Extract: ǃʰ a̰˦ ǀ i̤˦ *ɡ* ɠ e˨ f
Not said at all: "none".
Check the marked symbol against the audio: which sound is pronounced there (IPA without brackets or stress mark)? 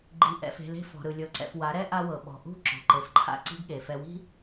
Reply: ɡ